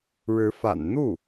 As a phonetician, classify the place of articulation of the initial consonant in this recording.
retroflex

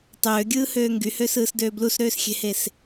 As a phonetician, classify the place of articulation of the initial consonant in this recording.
alveolar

